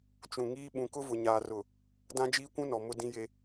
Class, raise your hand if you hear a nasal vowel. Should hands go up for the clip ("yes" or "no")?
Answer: yes